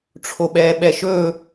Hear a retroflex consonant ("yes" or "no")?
yes